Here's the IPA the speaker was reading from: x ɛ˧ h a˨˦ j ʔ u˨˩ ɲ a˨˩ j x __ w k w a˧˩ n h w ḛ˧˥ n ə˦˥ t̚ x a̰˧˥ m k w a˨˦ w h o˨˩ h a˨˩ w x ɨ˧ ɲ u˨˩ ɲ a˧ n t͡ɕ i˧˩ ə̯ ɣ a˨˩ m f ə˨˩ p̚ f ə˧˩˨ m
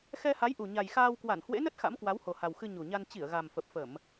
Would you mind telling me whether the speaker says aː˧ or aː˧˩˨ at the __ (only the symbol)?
aː˧